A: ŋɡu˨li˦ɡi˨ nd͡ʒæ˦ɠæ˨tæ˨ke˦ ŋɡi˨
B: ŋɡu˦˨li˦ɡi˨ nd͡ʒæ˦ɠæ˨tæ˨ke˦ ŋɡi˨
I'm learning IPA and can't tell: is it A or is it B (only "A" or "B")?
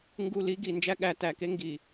B